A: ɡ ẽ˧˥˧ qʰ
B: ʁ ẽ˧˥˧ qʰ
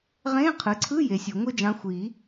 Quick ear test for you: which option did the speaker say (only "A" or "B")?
B